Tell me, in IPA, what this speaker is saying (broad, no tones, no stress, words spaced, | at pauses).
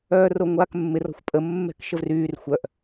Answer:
œːroŋʷaːkmːɪr ɔ̤xʷpʼə mːɛ̤kʃəvryːr xʷœʔ